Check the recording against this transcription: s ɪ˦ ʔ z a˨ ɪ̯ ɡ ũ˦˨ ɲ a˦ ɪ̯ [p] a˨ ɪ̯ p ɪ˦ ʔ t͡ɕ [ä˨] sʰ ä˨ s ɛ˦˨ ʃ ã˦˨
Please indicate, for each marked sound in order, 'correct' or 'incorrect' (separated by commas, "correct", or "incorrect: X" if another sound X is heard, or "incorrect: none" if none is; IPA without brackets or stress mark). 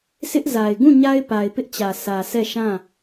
correct, correct